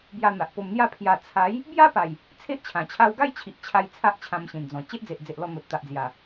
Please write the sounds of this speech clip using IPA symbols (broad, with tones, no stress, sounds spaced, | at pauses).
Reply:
b j a˧ n̪ a˨ ʔ p o˧ m n̪ j a˥˧ pʰ j a˧ t͡sʰ a˨˦ j | b j a˦ p a˨˩ j | t͡sʰ e˦ ʔ t͡ɕʰ ã˨˩ t͡ɕʰ a˧ w ɡ a˥˧ j t͡ɕʰ i˨ ʔ t͡ɕʰ a˧ j t͡sʰ a˦ ʔ t͡ɕʰ ã˧ m ɕ ĩ˨˩ n d͡z ɔ̃˨˩ t͡ɕ e˦ ʔ d͡z e˨ ʔ d͡z e˨ ʔ l ɔ˧ n̪ o˨ t̚ t̪ a˨ ʔ d͡z j a˨˩